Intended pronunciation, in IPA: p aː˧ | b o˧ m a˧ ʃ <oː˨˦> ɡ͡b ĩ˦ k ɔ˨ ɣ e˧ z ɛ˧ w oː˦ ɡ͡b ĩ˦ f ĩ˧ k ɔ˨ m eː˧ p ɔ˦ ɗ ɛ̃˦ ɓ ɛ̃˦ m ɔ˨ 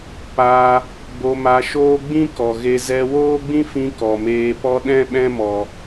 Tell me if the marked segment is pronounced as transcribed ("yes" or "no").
no